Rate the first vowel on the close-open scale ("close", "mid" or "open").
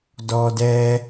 mid